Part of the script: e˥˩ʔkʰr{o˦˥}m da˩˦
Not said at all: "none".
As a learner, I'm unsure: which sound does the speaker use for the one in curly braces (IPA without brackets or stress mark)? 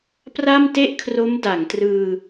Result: o˦˥